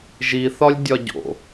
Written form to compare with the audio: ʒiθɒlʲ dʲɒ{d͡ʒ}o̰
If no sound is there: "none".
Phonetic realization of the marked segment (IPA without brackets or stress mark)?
ɟ